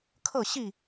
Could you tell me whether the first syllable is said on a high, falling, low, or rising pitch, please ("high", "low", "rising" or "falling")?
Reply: falling